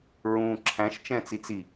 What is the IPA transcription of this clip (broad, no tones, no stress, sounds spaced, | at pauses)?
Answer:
ɹ ũː ǁʰ æ̃ ʃ t͡ʃ ɛ̃ː t͡s i t͡s i